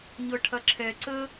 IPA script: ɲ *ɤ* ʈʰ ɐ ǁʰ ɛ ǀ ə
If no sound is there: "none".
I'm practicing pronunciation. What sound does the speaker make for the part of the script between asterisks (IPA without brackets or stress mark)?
ɤ